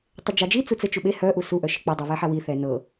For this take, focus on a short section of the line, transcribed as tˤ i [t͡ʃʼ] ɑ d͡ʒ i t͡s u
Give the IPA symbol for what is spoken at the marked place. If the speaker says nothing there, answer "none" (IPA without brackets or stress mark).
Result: d͡ʒ